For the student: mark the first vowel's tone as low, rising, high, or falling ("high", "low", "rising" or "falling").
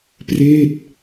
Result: falling